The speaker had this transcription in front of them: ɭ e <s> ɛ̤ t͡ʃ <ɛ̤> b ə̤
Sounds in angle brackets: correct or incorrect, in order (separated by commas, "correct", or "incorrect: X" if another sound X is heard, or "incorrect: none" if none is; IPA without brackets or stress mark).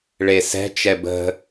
correct, incorrect: ɛ